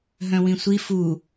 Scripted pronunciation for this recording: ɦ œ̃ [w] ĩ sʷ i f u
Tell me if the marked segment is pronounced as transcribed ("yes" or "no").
yes